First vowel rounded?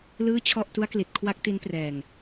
no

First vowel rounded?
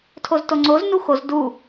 yes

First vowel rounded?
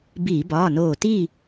no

